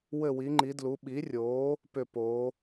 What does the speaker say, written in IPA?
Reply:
wɘ˥˧wi˨˥ŋ͡ǃi˨˥dlu˨˥ ɓi˨˥rʲoː˨˥ | pʏ˥˧poː˨˥

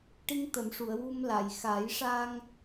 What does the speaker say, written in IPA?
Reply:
ʈi˧ŋt̪ə˨˩˨mʂu˨˩˨ə̯ wu˧mla˨˩˨j xa˨˩˦jʂa˧ŋ

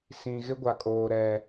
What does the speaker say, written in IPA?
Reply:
sĩ˨ɣɪ˦ɡʷa˨kʼoː˨ ɾɛ˨

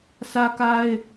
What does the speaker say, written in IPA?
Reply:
sʰä˦ka˦ɪ̯

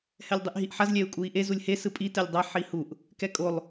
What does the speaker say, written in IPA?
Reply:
hɛlʲdˤeʔɦiʔħaz lʲɛu̯kʼui̯ʔe zulʲhe sɯpʼi tɛlʲdˤa ħihuʔ | kɛkʼolˠ

